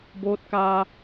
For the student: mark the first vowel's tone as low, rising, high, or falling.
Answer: rising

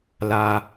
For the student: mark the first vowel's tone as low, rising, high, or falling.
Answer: low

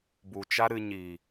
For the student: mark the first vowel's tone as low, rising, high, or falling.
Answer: low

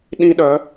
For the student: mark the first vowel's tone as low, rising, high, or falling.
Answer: high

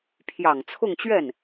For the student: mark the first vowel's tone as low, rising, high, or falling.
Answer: low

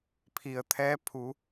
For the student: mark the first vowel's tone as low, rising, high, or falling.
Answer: low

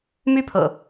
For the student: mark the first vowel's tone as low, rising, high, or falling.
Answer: falling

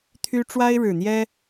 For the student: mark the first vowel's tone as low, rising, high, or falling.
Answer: high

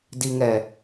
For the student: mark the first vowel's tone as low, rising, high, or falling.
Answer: low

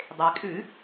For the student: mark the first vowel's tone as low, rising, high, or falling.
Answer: low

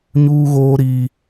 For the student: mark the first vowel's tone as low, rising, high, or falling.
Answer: high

